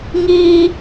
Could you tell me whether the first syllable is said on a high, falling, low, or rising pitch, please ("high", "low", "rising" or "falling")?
high